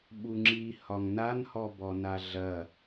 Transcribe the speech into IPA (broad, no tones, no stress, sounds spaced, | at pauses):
ɓ u ŋ͡ǁ i h ɒ ŋ n a n h ɔ b ɔ n a ɮ ɐ